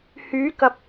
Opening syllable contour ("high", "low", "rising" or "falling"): rising